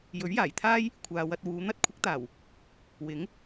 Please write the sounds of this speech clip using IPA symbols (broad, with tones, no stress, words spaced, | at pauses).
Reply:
jɵ˨˥ɥjaː˨˩jt̪ʰaː˥j | kʷʰaː˨wɐ˧t̚wuː˨˧ n̪ɐ˥t̚ kʷʰɪ˨˥k̚t̪aː˨˩w | wɪ˨˥ŋ